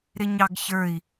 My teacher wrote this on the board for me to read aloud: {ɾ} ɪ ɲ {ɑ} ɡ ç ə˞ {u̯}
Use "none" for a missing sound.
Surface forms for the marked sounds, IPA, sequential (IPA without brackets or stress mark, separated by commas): ɾ, ɑ, i̯